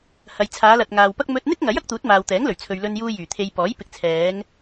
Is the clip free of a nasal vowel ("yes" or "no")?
yes